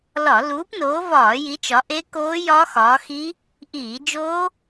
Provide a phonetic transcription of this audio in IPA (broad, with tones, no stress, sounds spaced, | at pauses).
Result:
l ɒ˧˩˧ l uː˨˦ p n oː˨˦ v ɒː˧˩˧ j i˨˦ t͡ʃ ɒ˨˦ ʔ e˦˥ k oː˦˥ j ɒ˦˥ x ɒː˨˦ x i˦˥ | ʔ iː˧˩˧ d͡ʒ oː˦˥